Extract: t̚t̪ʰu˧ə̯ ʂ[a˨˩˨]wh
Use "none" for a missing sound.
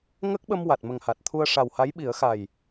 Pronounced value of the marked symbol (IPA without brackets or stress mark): a˨˩